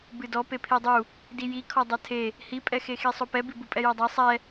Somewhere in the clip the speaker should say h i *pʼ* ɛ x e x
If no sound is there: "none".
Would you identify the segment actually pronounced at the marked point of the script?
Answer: pʼ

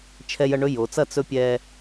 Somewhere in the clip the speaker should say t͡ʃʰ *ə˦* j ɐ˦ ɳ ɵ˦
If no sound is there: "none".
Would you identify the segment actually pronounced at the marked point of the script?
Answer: ɛ˦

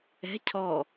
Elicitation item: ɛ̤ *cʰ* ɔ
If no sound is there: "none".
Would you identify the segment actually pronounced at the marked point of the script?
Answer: cʰ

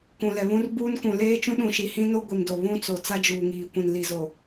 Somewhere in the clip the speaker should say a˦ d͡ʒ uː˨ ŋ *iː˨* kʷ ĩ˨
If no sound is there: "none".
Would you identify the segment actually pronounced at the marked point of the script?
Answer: iː˨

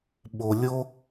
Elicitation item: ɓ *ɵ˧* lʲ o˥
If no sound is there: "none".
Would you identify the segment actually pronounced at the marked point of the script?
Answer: o˧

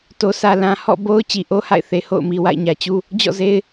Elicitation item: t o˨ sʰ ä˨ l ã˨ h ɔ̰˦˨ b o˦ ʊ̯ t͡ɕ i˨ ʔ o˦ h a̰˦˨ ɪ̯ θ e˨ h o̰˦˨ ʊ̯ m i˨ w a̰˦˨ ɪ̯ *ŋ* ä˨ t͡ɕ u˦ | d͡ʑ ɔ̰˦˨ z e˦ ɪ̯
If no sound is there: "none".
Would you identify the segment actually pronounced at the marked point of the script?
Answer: ɲ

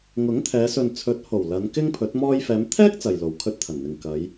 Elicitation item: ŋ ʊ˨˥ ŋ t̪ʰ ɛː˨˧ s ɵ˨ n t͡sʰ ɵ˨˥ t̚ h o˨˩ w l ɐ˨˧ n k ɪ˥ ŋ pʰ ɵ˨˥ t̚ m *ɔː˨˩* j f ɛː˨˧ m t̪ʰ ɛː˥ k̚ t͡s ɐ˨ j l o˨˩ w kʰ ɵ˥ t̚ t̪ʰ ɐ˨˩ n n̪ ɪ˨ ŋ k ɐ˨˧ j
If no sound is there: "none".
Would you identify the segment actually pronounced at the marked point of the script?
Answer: ɔː˧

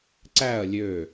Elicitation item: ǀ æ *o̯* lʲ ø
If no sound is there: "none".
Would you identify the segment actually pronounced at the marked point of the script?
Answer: ɐ̯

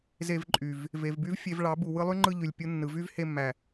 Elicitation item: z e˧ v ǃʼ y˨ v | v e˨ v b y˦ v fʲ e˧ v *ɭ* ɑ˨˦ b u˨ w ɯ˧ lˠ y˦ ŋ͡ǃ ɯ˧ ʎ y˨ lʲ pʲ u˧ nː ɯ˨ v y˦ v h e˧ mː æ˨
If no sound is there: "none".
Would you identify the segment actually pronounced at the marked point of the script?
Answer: ɭ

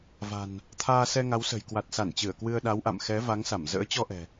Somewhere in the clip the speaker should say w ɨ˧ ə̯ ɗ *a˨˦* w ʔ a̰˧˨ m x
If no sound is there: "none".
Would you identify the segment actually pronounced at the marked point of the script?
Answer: a˨˦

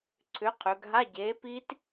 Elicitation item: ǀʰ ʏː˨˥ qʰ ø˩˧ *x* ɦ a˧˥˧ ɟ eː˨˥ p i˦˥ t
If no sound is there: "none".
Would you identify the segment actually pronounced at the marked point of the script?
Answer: ɡ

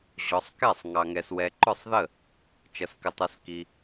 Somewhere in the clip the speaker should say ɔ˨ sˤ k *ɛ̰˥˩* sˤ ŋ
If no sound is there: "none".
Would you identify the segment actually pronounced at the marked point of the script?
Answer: ɛ˥˩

